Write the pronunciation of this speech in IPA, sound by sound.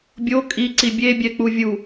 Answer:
bʲ o kʼ i ǀ i bʲ e bʲ ɛ k͡p u vʲ u

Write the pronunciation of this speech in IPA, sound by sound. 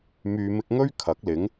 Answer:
m yː˨ m ɪ˧ k̚ ŋ ɵ˥ ɥ kʰ ɐ˨˥ k̚ l ɪ˨˥ ŋ

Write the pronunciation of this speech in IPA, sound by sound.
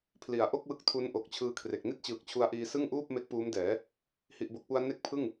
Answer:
pʰ l i˩˦ a̯ ʔ o˥˩ k̚ w ɯ˦˥ k̚ tʰ u˦˥ n ʔ o˨˩ k̚ t͡ɕʰ ɯː˦˥ kʰ r e˨˩ k̚ n i˥˩ t̚ t͡ɕ ɯː˨˩ k̚ t͡ɕʰ u˧ a̯ ʔ iː˧ s ɯ˥˩ ŋ ʔ uː˥˩ p̚ m e˦˥ k̚ p uː˦˥ m d ɛː˩˦ | h i˨˩ ʔ b o˨˩ k̚ p u˧ a̯ n e˦˥ k̚ pʰ ɯ˥˩ ŋ

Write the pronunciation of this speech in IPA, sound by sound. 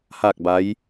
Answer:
h aː˥˨ k̚ b a˧˥ j

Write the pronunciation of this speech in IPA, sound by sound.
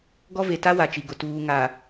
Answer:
ɡ ɔ˦ v e˨ t a˦ w a˨ t͡ʃ i˨ ɡ ʊ˨ t uː˨ ŋ a˨

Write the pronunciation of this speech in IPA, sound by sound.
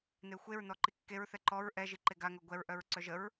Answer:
n e xʷ e ɹ n ɔ ǃ i kː e ɹ θ ɛ ǃ ɔ ɹ ʔ ɛ ʒ i ǃ e ɡ a ŋ œ ɡʷ ɛ ɹ ʔ œ ɹ ǀ œ ʒ ə ɹ

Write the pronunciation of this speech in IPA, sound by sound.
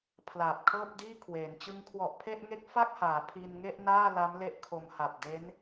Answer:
pʰ l aː˨˩ p̚ kʰ ɤː˥˩ p̚ d iː˥˩ kʰ w eː˩˦ n t͡ɕ ɯ˦˥ ŋ kʰ w ɔ˨˩ ʔ pʰ e˥˩ ʔ ŋ e˦˥ k̚ f a˥˩ k̚ h aː˩˦ pʰ i˧ n ŋ e˥˩ ʔ n aː˥˩ l a˦˥ m l e˥˩ ʔ kʰ o˧ m h a˨˩ p̚ d e˦˥ n

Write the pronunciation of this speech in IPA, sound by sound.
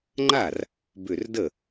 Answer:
ŋ͡ǃ a˥˩ r | b ʏ˧˩ r d ə˥˩

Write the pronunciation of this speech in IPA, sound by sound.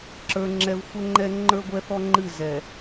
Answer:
ǁ ə˞˨ ŋ͡ǁ ɛ˨ v xʷ ɛ˦ ŋ͡ǃ ɛ˦ ŋ͡ǃ ə˞˦ ɡʷ ɛ˦ θ ɔ˦ ŋ͡ǃ ɨ˦˨ z ɛ˨

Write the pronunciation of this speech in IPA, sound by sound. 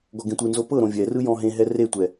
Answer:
ɡ ɔ ɡ ẽ tʷ ɯ n z o p ɤ ɾ õ vʲ ɛ r ɯ j ɔ̃ ɦ ẽ ɦ ɛ r e tʷ ɛ

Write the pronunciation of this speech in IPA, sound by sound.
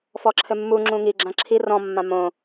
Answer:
f ɔ ǁʰ ɘ mː u ŋ͡ǁ ũ ŋ i ɡ͡ǁ ã ǁʰ i r ɔ̃ mː ã m õ

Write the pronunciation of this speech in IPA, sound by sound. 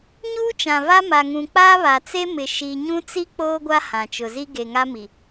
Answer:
ɲ uː˦ t͡ʃ ã˨ v a˦ m a˨ ŋ ũ˨ k͡p aː˦ β a˨ t͡s e˦ m ɪ˨ ʃ i˨ ɲ ũ˦ t͡s i˦ k͡p oː˦ ɡʷ a˦ h ã˨ t͡ʃ ʊ˨ z i˦ ɡ e˨ ŋ a˦ m i˨

